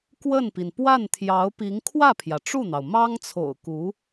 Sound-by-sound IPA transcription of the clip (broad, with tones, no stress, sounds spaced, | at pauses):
k w ə˥˩ n p i˩ n p w a˥˩ n t̪ʰ j ɑ˧˥ ʊ̯ p i˧˥ ŋ kʰ w ä˥˩ pʰ j ä˩ ʈ͡ʂ u˥˩ n̪ ɑ˩ ʊ̯ m ɑ˥ ŋ t͡sʰ o̰˨˩ ʊ̯ k u˧˥